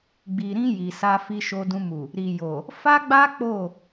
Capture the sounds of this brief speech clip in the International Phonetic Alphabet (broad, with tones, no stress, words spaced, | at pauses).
ɡ͡bi˨ɾĩ˧ ji˨sa˧ fi˧ʃo˧dũ˧mu˨ | ɾi˨jo˨ | fa˦ɡ͡ba˦ k͡po˦˨